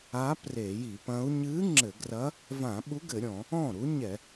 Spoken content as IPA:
a˧˥ pre˧˩˧ji˧˩˧pɐ̃˧˥u̯ ɲɨ˧˥ ŋ͡ǁɘ˧˩˧ɡrɐ˧˥ | vã˧˩˧ɓu˧˥ɡɘ˧˩˧ɾʲɔ̃˧˩˧ | ɔ̃˥˩ ɾu˧˥ɲɛ˧˩˧

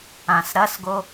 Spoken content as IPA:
ãsɾɐsɡo

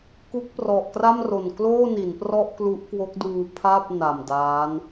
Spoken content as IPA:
ku˦˥k̚prɔ˨˩ʔkra˥˩mro˨˩n kloː˥˩ni˩˦nprɔ˥˩ʔklu˦˥ʔ kwo˦˥k̚duː˧pʰa˥˩p̚ na˨˩mdaː˦˥n

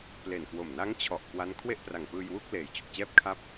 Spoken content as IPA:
ple˨˩nkwo˨˩m na˦˥ŋ t͡ɕʰɔ˨˩ʔkwa˦˥n kʰwe˥˩ʔpra˨˩ŋpɯː˧jwu˥˩k̚ leː˨˩jt͡ɕu˨˩k̚ t͡ɕɛː˥˩p̚ kʰa˥˩p̚

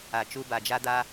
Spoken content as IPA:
a˨ t͡ʃu˧ba˨d͡ʒa˦d̪a˦

